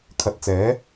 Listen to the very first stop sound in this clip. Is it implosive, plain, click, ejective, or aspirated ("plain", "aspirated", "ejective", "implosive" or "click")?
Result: aspirated